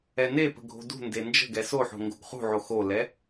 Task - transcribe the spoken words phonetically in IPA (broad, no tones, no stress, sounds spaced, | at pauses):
ɛ n e p ə̤ ɡʱ o̤ d ṳ n d e n d͡ʒ ə̤ ɡ ɛ s o ħ o̤ ŋ ɡ o̤ ɡ χ ṳ ʕ o x o l ɛ